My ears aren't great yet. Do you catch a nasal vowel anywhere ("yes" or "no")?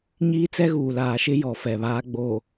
no